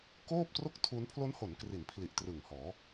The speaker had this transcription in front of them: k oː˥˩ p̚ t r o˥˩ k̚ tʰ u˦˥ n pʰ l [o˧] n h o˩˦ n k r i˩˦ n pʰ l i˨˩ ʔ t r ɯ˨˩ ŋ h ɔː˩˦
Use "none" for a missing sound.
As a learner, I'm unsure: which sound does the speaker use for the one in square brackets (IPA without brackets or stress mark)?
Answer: o˦˥